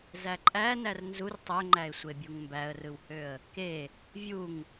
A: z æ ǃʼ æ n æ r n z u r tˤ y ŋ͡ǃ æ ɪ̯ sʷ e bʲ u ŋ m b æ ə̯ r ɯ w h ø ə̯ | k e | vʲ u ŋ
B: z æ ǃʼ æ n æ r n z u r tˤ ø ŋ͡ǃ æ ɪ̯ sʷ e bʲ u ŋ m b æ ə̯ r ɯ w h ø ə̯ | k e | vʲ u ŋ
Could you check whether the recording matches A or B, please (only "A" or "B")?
B